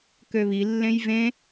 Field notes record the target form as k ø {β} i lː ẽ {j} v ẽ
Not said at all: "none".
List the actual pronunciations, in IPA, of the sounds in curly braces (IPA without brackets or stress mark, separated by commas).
β, j